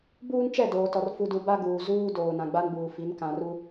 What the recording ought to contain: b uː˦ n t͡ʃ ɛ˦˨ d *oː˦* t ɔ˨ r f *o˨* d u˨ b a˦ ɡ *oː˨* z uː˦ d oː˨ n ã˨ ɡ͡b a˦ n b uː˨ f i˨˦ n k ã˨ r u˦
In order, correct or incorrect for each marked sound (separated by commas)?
incorrect, incorrect, incorrect